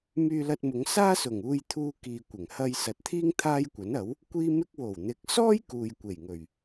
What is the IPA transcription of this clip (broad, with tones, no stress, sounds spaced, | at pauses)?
m yː˧ l ɐ˧ t̚ m ʊ˨˧ ŋ s aː˥ s ʊ˨˩ ŋ uː˧ j t̪ʰ uː˧ k iː˨ kʷ ɪ˨˩ ŋ h ɐ˧ j s ɐ˨ t̚ t̪ʰ iː˥ ŋ t̪ʰ aː˥ j kʷ ɐ˨˥ n ɐ˨˥ w | kʷ iː˥ m ɪ˥ k̚ w o˨˩ w n̪ ɪ˨˥ k̚ s ɔː˥ j k uː˨ j kʷ e˨˩ j ŋ ɵ˨˩ ɥ